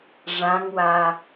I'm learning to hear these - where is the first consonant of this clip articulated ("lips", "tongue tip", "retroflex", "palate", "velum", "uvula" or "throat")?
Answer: retroflex